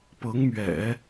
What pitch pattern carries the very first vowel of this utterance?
rising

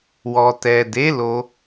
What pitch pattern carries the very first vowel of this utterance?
low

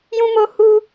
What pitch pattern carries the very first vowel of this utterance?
high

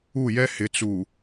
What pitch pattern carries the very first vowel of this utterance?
falling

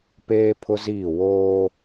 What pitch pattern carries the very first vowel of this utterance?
high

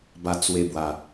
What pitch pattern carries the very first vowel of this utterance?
low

